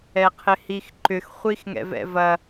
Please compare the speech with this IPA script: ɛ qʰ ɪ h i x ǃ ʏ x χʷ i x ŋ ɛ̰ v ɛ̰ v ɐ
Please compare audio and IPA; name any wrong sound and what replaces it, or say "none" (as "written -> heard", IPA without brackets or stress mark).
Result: none